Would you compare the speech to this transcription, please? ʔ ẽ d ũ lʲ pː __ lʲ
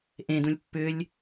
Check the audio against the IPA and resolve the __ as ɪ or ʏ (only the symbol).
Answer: ʏ